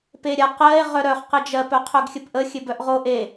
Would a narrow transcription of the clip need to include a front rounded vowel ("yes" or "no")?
yes